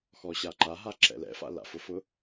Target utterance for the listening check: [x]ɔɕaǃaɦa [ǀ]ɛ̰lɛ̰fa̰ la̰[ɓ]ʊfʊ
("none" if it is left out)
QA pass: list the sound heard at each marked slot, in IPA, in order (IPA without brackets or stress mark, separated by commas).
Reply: x, ǁ, f